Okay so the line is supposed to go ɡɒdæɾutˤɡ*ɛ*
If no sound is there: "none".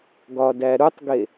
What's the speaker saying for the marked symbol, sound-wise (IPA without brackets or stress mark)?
e